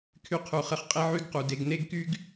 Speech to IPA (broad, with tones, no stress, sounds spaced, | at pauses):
kʰ y˧ qʰ u˨ χ ə˧ χ qʼ e˦ ʕ y˦ ɡ q u˨ d e˧ ɡ n e˦ ɡ k y˦ ɡ